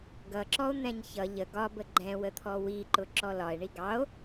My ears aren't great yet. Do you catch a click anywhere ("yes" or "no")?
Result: yes